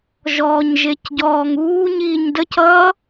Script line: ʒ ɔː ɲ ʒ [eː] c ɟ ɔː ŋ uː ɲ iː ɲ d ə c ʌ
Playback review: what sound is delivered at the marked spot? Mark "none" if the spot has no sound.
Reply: e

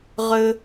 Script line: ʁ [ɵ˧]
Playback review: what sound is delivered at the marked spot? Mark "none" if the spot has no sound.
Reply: ɵ˧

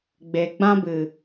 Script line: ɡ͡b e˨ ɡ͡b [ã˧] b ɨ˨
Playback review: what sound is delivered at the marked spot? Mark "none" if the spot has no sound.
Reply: ã˧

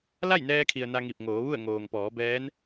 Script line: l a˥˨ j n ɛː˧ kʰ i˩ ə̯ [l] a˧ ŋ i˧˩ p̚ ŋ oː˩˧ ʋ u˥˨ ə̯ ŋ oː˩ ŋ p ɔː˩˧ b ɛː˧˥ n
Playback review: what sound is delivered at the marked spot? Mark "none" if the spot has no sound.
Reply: n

